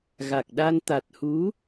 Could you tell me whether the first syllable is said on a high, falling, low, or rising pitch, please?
low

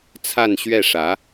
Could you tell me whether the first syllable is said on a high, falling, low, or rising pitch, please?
falling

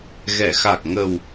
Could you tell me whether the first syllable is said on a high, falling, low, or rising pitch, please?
low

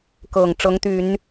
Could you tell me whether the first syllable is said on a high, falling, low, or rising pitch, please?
low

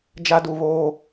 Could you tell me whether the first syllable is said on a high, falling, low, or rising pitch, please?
high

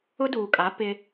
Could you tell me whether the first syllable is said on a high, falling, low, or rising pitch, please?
high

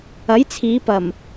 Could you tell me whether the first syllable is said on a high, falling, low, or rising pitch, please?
rising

